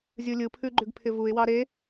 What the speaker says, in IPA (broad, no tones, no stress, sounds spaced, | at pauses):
zʲ ɯ lʲ ɯ pʰ ʉ ɡ͡ǃ ʉ ɡ pʰ ɪ v u ɪ̯ w ɑ ɾ e